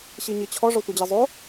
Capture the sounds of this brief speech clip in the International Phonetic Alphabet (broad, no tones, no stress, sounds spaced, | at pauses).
ɕ i ɲ i t͡ɕʰ ɔ ʐ ɔ tʷ i d͡ʑ e zˤ o